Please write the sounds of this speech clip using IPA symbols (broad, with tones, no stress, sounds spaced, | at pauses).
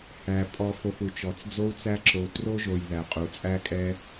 h æ˩ pʼ ɔ˨ f o˨ f u˩ t͡ʃ ɔ˩ t͡s d͡z o˦ u̯ t͡s æ˦ ǁ o˨ t r o˥ ʒ o˨ j ð æ˩ qʼ u˩ t͡sʼ æ˦ kʼ ɛ˦